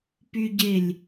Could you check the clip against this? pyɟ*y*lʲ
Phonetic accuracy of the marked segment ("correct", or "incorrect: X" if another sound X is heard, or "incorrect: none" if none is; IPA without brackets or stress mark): incorrect: e